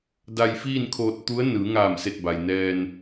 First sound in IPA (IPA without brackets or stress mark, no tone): d